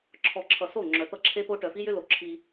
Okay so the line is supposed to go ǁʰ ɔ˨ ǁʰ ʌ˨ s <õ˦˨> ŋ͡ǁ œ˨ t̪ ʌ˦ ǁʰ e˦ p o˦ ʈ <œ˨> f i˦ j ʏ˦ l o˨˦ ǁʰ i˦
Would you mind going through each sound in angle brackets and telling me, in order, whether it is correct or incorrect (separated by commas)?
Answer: incorrect, correct